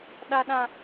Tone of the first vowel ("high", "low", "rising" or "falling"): high